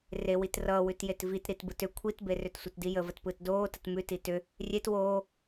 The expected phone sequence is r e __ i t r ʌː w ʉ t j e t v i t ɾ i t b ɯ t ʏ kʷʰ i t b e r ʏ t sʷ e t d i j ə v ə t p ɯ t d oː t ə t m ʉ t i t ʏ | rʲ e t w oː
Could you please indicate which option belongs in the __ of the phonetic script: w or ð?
w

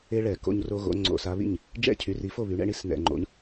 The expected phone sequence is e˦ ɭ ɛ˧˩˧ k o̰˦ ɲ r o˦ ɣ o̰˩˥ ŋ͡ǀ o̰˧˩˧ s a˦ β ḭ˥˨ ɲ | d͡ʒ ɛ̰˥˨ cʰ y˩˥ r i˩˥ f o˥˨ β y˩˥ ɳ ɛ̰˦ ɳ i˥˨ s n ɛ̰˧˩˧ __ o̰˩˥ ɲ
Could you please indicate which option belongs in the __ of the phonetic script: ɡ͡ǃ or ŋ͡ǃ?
ŋ͡ǃ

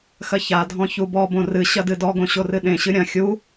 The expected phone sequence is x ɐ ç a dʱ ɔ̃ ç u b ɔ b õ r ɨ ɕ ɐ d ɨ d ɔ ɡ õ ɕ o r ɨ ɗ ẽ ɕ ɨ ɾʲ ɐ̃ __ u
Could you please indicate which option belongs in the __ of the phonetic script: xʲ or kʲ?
xʲ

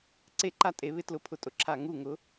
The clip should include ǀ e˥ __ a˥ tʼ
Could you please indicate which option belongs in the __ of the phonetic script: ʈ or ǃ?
ǃ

